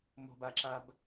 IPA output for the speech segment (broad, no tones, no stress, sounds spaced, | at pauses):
m o̤ b a ǁ a b